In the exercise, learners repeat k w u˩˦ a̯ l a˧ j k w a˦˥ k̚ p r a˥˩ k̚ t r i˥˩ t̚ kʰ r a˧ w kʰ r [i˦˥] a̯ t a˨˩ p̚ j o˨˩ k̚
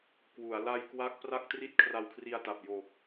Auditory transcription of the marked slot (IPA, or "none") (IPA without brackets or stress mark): i˧